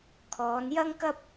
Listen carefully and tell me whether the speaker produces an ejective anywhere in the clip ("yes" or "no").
no